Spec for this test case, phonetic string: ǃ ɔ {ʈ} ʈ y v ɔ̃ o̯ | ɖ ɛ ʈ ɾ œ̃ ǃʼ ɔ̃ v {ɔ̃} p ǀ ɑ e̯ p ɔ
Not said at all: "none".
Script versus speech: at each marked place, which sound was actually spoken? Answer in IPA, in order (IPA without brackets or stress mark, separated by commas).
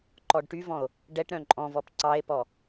ɖ, ɔ